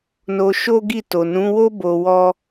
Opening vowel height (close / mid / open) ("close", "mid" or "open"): mid